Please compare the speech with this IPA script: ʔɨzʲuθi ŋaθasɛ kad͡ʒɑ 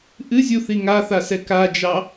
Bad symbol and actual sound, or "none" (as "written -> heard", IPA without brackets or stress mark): none